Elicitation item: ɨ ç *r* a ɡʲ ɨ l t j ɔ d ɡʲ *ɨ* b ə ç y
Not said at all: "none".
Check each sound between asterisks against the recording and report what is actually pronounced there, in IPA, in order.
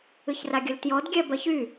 r, ɛ

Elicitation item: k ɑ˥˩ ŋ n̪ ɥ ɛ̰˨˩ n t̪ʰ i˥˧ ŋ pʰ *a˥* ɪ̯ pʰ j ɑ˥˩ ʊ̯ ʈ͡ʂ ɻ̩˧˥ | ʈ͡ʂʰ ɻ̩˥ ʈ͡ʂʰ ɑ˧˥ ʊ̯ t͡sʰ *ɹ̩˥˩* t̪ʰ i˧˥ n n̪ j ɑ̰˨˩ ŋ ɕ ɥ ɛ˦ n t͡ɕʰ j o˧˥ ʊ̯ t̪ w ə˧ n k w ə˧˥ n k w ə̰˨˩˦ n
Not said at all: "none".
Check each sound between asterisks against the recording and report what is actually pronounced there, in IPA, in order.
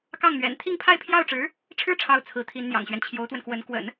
a˥˧, ɹ̩˧˥

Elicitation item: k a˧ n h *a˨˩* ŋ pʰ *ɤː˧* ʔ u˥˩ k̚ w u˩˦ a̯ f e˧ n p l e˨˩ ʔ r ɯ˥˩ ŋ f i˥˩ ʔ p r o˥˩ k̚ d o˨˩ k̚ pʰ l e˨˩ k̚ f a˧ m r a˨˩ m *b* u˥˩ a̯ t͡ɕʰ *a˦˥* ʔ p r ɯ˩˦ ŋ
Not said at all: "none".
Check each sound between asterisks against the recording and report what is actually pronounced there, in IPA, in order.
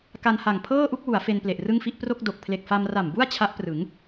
a˨˩, ɤː˥˩, b, a˦˥

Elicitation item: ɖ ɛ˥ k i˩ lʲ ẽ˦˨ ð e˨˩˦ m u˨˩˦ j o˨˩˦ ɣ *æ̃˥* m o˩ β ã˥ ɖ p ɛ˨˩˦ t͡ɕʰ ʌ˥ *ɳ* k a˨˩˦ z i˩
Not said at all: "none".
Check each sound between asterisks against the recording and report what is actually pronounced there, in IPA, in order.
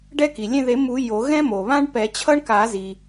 ɛ̃˥, ɳ

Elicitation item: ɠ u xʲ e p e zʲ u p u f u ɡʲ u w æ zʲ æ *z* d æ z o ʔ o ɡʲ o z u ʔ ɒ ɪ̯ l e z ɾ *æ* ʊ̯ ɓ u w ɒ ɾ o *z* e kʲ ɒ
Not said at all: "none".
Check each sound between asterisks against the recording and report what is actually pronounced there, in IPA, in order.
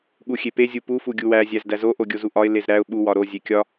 z, æ, zʲ

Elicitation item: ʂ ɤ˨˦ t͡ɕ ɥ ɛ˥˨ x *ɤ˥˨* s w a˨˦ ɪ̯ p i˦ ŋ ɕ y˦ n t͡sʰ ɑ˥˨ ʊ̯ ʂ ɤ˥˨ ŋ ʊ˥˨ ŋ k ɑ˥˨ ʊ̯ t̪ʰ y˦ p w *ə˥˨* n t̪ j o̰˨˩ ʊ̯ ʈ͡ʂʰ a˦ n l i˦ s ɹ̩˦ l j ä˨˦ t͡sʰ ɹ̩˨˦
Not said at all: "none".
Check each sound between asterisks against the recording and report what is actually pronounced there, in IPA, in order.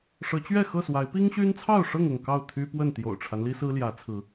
ɤ˥˨, ə˥˨

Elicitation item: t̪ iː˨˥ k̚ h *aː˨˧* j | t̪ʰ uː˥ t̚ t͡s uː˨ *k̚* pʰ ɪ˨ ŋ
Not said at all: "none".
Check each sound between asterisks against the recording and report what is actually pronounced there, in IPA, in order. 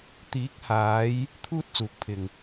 aː˨˧, k̚

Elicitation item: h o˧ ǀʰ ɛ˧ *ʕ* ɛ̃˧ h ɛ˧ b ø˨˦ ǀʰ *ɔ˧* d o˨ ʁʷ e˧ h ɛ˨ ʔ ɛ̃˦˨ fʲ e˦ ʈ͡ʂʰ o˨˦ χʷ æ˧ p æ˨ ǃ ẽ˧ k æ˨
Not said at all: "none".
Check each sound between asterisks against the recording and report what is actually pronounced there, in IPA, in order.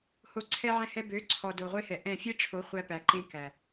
ʕ, ɔ˨

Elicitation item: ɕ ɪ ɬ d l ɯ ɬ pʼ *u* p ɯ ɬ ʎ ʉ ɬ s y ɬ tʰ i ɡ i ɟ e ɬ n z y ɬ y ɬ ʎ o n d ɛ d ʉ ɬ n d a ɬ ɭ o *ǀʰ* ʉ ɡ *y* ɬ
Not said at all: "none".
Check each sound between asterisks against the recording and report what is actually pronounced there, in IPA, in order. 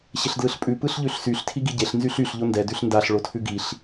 ʉ, tʰ, i

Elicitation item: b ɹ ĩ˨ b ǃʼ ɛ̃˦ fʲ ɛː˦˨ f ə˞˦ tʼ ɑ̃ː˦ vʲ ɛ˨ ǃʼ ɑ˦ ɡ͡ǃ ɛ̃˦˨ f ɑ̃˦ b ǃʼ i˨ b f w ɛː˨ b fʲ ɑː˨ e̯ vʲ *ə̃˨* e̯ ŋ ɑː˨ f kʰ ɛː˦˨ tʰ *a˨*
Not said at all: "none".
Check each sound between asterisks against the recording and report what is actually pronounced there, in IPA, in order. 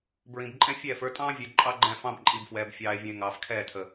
ə̃˨, ə˨

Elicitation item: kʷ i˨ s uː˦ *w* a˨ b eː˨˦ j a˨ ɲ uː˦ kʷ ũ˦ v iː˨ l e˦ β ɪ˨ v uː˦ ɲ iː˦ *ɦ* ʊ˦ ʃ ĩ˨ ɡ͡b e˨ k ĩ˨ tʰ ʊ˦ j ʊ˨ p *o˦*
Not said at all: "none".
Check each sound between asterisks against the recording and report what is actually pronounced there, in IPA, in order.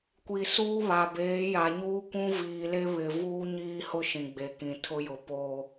β, h, o˨

